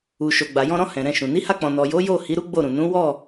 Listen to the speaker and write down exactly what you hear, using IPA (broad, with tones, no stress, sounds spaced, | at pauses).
u˨ ʃ o˨ ɡ͡b a˨ j ɔ̃˧ ɾ ɔ̃˧ h ɛ̃˨ ɾ ɛ̃˧ ʃ ũ˨ n i˨˦ h a˧ k͡p ɔ̃˨ n ɔ˨ j o˨˦ j o˦˨ h i˨˦ ɾ u˦ ɡ͡b o˦˨ ɾ ũ˨ n ũ˨˦ w ɔ˦˨